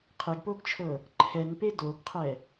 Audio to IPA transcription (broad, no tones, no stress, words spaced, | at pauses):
qʰeɡpoɡt͡ʃʰɤ | ǃʰɛnpe doɡqʰɛ